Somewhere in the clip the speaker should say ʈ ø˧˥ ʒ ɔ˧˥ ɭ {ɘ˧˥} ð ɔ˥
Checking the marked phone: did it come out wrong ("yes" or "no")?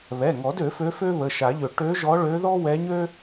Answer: yes